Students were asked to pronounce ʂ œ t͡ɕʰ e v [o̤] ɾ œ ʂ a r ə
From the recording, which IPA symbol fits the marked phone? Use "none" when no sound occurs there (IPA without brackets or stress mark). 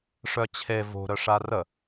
o̤